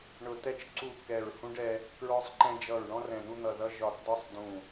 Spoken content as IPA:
ɳ ʊ˦˨ t ɛ˥ t͡ʃ ǀ u˦˨ k ɛ˦˨ ɹ h ũ˥ ɖ ɛ˥ | k ɹ ɔ˥ sˤ ǃ ɛ̃˥ d͡ʒ ʌ˦˨ ɹ ɳ ɔ̃˥ r ɛ̃˦˨ n̪ u˥ n̪ ʌ˦˨ ð ʌ˥ ʒ ɒ˦˨ t d ɒ˥ sˤ d ũ˦˨

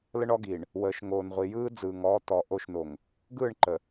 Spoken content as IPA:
l ə˦ ɳ ɔ˦ ɡ i˨ ɳ | w əː˨ ʃ ŋ oː˨ n ʁʷ i˨ j ɯː˦ d͡z ɯː˨ ŋ ɔː˦ t̪ ɔ˨ ʔ o˦˨ ʃ n o˨ ŋ | ɡ ɯː˦˨ ɳ ǃ ə˨

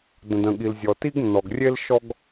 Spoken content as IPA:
d ə̃˩ d ə̃˩ ɠ i˩ l zʲ ɔ˩ t i˥ ɡ nː ɔ˩ ɡ rʲ e˥ l ʃ ɔ˥ ɡ

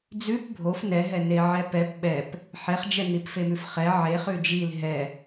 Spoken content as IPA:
d͡z ʉ p bʱ o f n ɛ ɦ ɛ n e ʕ ɛ p ɛ p ɓ ɛ p | ħ ɛ χ d͡ʒ ɛ n̪ i p f e m ʉ f χ ɛ ʕ e χ ʉ d͡ʒ i l ɦ ɛ

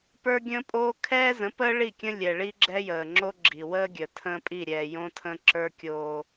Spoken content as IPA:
p ə˞˦ ɡʲ ə̃ː˦ pʼ oː˦ kʰ ɛː˦ z ə̃˨˦ p əː˦ ɭ i˦˨ kʲ ə̃˦ lʲ ɛ˨ ɭ i˦ ɡ͡ǁ ɛ˦ j əː˨ ŋ͡ǁ o˦ ɡ͡ǁ i˨ w əː˦ ɡʲ ə˨ tʰ ə̃ː˦ pʼ i˦˨ ɾʲ ɛː˨ j õ˦ tʰ ə̃˦ ǁ ə˞˦ kʲ oː˦

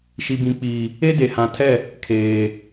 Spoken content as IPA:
ʃ i˨ b ĩ˨ k͡p iː˨ | e˦ d e˨ h ã˨ tʰ ɛ˦˨ | kʰ eː˨

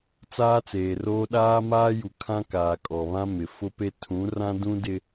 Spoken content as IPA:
t͡s aː˦ t͡s eː˨ r oː˦ ɗ aː˦ m aː˦ j u˨ kʰ ã˦ k aː˨ kʼ ɔ˨ β ã˦ m ɪ˨ f ʊ˦ p e˦ tʰ ũ˨˦ r ã˦ d ũ˦ d ɪ˦

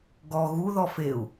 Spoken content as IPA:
ɡ ɔ ɣ u ð ɔ f e u̯

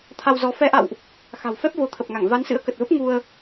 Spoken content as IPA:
t̪ʰ a˧ w z ɔ˨˦ f ɛ˨˦ ʔ a̰˧˨ w ʔ | x a̤˨˩ w f ɛ˦˥ p̚ v o˨˦ t̪ʰ ə˨˩ p̚ ŋ a˧˩ ŋ v a˨˦ n s ɨ̰˧˥ ə̯ k ə˨˩ t̚ v ə˦˥ p̚ ŋ u˧ ə̯

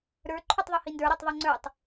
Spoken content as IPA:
ɾ ə˞ ǃʰ u tˤ ðˤ ə˞ h i n d ə˞ ɾ ə˞ tˤ ðˤ ʉ ŋ͡ǀ ə˞ tˤ

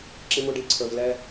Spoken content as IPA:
ǁ i m u ɖ i ǀʰ ə˞ v l ɛ

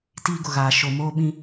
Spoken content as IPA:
t iː˦ ɡ ʊ˨ ɣ aː˨ ʃ o˨ m oː˦ ɓ ĩ˦

